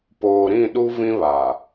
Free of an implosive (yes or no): no